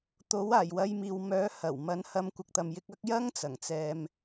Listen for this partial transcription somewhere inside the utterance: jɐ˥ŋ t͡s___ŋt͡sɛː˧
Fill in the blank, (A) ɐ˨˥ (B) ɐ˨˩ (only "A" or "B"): B